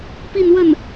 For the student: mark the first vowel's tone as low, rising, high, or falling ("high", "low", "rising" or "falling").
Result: falling